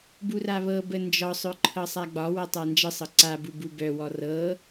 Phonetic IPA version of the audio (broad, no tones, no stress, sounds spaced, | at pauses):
b u r a β ɤ b ə n d͡ʒ ɒ sˤ œ ǃʰ ɤ sˤ a ɡ͡b ɒ w ɤ tˤ a n d͡ʒ ə sˤ ɤ ǀ a b u b u b œ w ɔ r ɤ